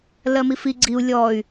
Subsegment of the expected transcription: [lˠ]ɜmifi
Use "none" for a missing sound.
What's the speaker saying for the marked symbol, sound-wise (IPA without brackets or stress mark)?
l